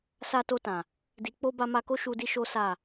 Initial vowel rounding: unrounded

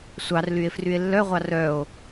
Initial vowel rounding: unrounded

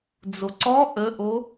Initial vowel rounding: rounded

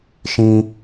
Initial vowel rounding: unrounded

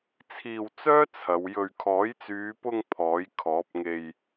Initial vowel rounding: unrounded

